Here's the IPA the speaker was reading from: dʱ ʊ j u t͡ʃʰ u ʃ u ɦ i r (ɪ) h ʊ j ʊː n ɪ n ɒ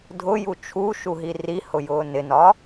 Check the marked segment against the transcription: incorrect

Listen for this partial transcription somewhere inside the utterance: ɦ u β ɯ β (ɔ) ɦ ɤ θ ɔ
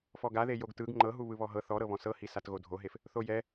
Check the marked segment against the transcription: correct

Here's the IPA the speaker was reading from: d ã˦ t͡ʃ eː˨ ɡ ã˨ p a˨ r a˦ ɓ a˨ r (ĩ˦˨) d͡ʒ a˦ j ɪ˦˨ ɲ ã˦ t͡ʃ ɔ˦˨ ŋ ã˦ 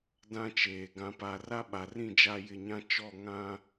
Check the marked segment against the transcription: correct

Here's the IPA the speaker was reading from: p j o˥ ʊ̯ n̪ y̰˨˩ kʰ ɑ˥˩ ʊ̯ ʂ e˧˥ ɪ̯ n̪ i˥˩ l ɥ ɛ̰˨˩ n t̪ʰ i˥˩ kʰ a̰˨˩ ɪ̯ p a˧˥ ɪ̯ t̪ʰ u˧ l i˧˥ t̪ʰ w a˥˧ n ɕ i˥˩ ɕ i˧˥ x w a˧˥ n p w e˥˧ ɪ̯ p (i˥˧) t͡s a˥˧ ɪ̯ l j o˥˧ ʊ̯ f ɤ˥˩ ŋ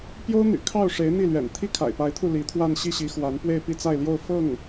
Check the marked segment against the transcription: correct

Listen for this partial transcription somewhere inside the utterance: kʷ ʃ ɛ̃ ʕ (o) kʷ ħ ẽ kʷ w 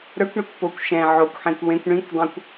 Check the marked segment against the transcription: correct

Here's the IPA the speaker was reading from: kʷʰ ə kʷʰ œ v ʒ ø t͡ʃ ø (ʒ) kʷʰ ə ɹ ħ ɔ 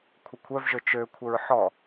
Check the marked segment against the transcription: incorrect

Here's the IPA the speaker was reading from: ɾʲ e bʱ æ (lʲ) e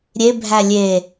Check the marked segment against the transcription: correct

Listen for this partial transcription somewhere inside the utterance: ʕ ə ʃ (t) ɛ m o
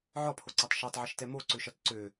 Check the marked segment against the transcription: correct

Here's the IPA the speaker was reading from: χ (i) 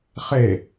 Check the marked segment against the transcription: incorrect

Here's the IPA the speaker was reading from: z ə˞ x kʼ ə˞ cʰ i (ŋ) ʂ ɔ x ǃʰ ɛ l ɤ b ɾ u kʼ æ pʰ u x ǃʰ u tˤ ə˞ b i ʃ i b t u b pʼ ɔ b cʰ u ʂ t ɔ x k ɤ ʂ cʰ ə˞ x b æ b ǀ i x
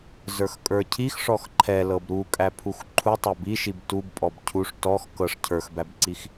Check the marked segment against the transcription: incorrect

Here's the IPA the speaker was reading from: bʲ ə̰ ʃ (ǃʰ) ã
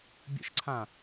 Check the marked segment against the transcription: incorrect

